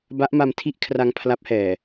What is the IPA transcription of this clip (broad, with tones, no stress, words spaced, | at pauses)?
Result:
ba˦˥ʔma˧mtʰi˥˩ʔkʰra˧ŋ pʰla˦˥p̚hɛː˨˩